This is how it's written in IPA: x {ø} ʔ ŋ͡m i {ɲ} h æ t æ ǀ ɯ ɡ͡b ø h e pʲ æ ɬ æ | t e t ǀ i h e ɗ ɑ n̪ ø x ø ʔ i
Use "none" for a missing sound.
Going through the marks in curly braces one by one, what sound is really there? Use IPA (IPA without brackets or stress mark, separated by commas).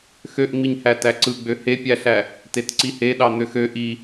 ø, ɲ